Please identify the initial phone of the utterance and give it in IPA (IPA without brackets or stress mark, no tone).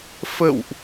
f